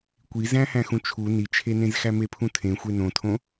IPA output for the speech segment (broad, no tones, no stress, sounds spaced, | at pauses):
kʷ i z æ̃ h æ̃ x ũ t͡ʃʰ u n i t͡ʃʰ e n ẽ z x æ m e pʰ ũ tʰ ẽ xʷ e n õ tʰ õ